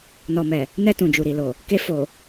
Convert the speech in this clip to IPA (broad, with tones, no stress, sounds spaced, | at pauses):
n ɔ˨ m ɛ˨ | n ɛ˧ t ũ˨ d͡ʒ u˨ ɾ i˨ l o˨ | k e˧ f o˨